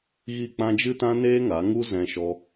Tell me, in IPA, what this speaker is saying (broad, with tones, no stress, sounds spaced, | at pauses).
ɣ i˦˨ k͡p ã˦ d͡ʒ ɨ˦ t ã˦ n eː˦ ŋ a˨˦ ŋ u˦ z ɛ̃˧ ʃ ɔ˧